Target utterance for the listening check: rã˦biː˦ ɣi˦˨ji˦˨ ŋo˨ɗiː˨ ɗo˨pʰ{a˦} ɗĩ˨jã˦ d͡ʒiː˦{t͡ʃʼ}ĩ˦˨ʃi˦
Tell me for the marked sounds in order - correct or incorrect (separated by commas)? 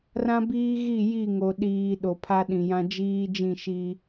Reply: correct, incorrect